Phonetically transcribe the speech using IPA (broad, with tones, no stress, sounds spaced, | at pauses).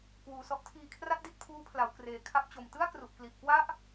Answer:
k w uː˨˩ s ɔ˦˥ ʔ tʰ iː˧ kʰ r a˥˩ t̚ d i˥˩ t̚ pʰ uː˦˥ pʰ l a˩˦ w k r eː˨˩ kʰ a˦˥ p̚ t͡ɕ o˨˩ m t ɯ˥˩ a̯ k r u˨˩ ʔ k l i˨˩ ʔ k w a˥˩ ʔ